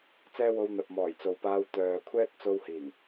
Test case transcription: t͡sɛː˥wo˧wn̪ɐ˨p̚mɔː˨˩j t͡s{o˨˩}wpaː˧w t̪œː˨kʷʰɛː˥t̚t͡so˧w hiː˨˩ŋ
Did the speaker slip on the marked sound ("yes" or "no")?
yes